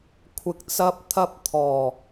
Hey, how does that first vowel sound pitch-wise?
low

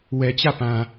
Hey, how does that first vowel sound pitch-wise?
low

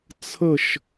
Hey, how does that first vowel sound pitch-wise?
falling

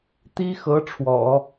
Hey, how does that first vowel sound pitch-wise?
high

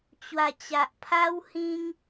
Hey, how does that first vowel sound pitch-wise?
low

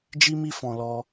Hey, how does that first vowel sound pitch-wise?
high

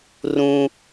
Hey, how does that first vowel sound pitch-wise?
high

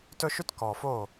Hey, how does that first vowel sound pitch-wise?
high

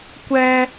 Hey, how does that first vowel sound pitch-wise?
high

